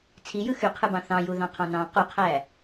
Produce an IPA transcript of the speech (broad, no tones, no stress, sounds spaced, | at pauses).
t͡sʰ i j ɯ x y qʰ ɯ b ɑ̃ θ ɑ̃ j u ð ɑ̃ qʰ ɑ̃ n ɑ̃ q u qʰ æː